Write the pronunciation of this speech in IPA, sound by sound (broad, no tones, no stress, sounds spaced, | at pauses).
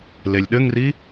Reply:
l e lʲ ɗ ɘ ŋ r i